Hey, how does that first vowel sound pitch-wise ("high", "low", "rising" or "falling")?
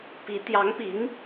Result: rising